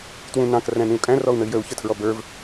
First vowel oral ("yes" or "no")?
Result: no